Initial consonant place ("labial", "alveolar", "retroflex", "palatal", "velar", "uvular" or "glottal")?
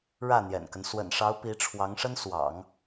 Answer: retroflex